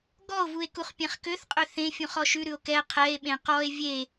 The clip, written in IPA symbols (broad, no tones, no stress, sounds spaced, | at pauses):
ɡ ɔ o̯ v u e̯ k u χ pʲ ɛ̃ χ k ø θ qʼ ø θ ẽ fʲ ũ χ ɔ ʃ ʉ ɾ ʉ o̯ k ɛ qʰ ɛ e̯ ɓ ẽ q ɔ e̯ vʲ e